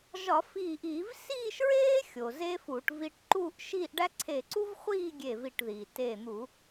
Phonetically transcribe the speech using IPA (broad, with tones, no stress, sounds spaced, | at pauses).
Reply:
ʒ ɒ˧˩˧ f iː˧˩ ʔ iː˧˩˧ v s iː˥˧ ʃ ɹ eː˥ xʲ o˩ z eː˥ f uː˧˩˧ ʈ v i˧ ʈ ǃ uː˥˧ ʔ ʃ iː˥˧ ʔ ɖ æ˥ ǀʰ e˧˩ ǀ u˥ v χʷ iː˥˧ ɡʲ e˧˩ v i˧˩ ʈ ð iː˩ t eː˧˩ n̪ u˧˩˧